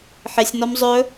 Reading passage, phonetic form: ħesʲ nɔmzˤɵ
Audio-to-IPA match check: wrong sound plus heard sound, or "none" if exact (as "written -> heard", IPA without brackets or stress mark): none